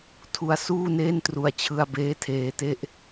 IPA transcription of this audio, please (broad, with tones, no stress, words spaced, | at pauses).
tʰu˧a̯suː˥˩neː˥˩ntru˧a̯ t͡ɕʰɯ˧a̯beː˦˥tʰeː˧te˥˩ʔ